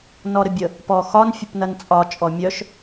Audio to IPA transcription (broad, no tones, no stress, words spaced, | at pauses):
nɔɾəbʲə | pɔxɒn fʲəpnɐnt͡sʼɒ t͡ʃʼɔmʲœʃ